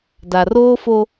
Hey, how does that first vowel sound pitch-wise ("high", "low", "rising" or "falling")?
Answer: low